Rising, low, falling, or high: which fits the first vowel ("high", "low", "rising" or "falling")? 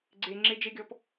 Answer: low